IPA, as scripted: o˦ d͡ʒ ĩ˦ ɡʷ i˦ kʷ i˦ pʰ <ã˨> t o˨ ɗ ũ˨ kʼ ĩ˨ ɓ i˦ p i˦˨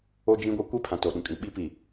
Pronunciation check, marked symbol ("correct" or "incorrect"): correct